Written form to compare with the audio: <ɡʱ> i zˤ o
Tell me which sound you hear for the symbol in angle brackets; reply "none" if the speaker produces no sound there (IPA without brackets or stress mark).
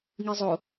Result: ŋ